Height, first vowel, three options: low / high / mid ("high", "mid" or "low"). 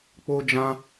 mid